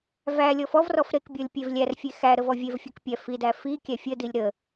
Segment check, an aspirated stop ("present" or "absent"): absent